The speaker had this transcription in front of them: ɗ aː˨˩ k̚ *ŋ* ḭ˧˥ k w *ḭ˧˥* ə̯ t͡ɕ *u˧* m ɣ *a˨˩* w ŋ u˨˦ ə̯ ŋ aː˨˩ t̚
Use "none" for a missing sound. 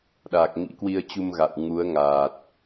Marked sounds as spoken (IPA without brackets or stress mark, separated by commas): ŋ, i˧, u˧, a̰˧˨